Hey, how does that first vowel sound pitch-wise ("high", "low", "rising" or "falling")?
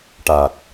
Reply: low